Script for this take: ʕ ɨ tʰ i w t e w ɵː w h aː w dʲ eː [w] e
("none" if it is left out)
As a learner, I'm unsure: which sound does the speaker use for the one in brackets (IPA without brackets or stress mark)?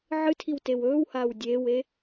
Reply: w